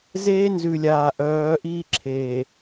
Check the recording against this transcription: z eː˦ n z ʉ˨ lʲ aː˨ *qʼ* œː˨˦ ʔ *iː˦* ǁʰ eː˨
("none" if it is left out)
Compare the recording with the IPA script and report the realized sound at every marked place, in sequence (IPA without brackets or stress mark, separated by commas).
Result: ʔ, iː˦